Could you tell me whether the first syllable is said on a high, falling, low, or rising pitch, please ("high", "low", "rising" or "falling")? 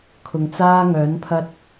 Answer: low